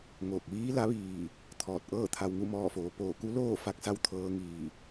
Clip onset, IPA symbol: ŋ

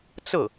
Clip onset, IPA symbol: t͡s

